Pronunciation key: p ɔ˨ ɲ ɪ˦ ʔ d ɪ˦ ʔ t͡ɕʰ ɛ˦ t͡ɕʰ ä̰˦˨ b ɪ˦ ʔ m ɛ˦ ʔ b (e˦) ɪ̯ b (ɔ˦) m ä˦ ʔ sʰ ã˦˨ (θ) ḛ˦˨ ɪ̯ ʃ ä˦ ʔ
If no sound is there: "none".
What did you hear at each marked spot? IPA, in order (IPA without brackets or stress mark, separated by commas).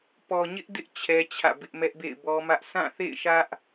ḛ˦˨, ɔ˦, θ